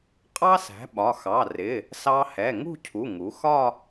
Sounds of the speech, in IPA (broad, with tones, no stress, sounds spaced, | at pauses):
qʼ ɑ˥ s æ̤˩˥ ɓ ɒ˩˧˩ x ɑ˩˧˩ r ɪ˩˧˩ | s ɑ˧ h ɛ˩˧˩ ŋ ṳ˥˧ cʰ u˩˧˩ ŋ u˩˥ x ɒ˥˧